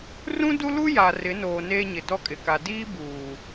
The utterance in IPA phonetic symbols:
r ũ˦ d u˦ l u˦ j a˨ r ɪ˨˦ n oː˨ n eː˦ ɲ ɪ˨ d ɔ˦ kʼ ɪ˨ k a˨ d iː˦ b uː˨

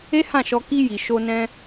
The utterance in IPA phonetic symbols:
e˦ h ã˦˨ ʃ ɔ˧ k i˧ j i˨ ʃ o˧ n ɛ̃˧

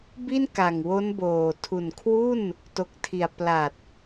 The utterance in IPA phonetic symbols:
b i˥˩ n k a˨˩ ŋ w o˦˥ n b oː˨˩ tʰ u˨˩ n kʰ w u˥˩ n | t o˨˩ k̚ tʰ i˨˩ a̯ p l a˨˩ t̚

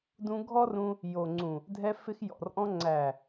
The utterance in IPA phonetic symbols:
d ũ˧ ɡʱ ɔ˦ r ũ˧ | j o˨ ŋ͡ǀ ũ˨ | dʱ ɛ˧ f ɪ˧ x j ɔ̰˨ r ʔ ɔ̃˧ ŋ͡ǀ æ˨

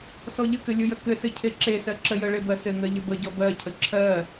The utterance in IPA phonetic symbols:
s ɔ ʎ ə k ɘ lʲ ʊ j ə k ɘ s ɘ cʰ e ǁ e s ɜ ǁ ə j ə ɭ e b ɜ s ɘ ŋ ɜ ʎ ə b ə ɟ ɔ b ɜ cʰ ə ǁʰ ɜ

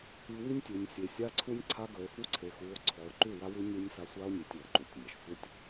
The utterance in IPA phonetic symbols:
i˨ w i˦ nʲ tʲ ʉ˨ nʲ sʲ e˨ sʲ a˦ ǀʰ u˦ nʲ ǀʰ a˦ ɡ ə˨ e̯ f u˦ ǀʰ e˨ x u˨˦ o̯ ǀʰ ɔ˨ o̯ ǃ ʉ˦˨ w a˦ w ʉ˦ nʲ u˦ nʲ s a˦ sʷ a˦ o̯ nʲ e˨ tʲ w ə˨ ǃ u˨ tʲ nʲ a˨ ʃ sʷ ə˦ tʲ

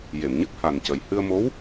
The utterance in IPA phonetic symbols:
j e˨˩˨ m ɲ ə˦˥ k̚ h a˨˩ n c ə˨˩ j h ɨ˧ ə̯ m o˧˥ w

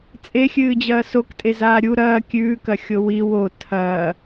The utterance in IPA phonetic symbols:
t͡sʼ e xʲ ɨː d͡ʑ ɐː s o k tʼ e z aː ɾʲ u ɾ ɐː kʲ ʉː k ɐ xʲ o w i w o tʰ ɐː

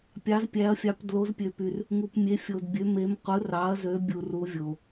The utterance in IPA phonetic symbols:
pʲ ɑ˩˧ z pʲ æ˩˧ ɐ̯ fʲ ɑ˩˧ p d l o˩˧ z pʲ ø˩ p y˩ r | ŋ u˩ p mʲ e˩˧ fʲ o˩ d bʲ ø˩˧ m e˩˧ m qʷ ɯ˩˧ r ɑ˩˧ ɐ̯ z ø˩˧ bʲ u˩ r u˩˧ vʲ o˩

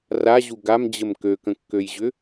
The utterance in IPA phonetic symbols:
r a ʑ u ɡ a m d͡ʑ ə m k ø k ə̃ kː ø j ʑ ʏ

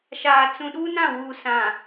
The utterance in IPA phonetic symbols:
ʃ aː˨ t͡s ũ˨ ɗ u˦ n ã˦˨ w u˨ s ã˨

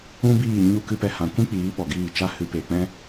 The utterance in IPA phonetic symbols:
ũ˦ b iː˦˨ ɲ u˦˨ k ɨ˦ p ɛ˧ h ã˨˦ kʷ ĩ˦ k͡p iː˨˦ ɓ ɔ˨ ɡ iː˦˨ t͡ʃ a˦ h ɨ˧ p eː˨ k͡p ɛ̃˦

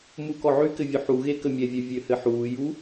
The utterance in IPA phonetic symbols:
m uː k ɔ ʕ y k ɘ vʲ u ħ u ɣ e k ə mʲ ɛ vʲ ɛ vʲ ø h ɘ ħ uː j u

